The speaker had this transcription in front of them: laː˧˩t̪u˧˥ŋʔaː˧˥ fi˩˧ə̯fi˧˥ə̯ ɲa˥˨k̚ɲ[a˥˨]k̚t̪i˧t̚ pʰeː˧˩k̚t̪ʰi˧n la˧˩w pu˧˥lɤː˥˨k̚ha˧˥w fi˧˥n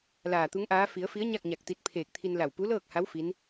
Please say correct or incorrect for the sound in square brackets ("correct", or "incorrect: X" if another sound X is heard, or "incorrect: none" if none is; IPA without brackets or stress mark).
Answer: incorrect: a˧˩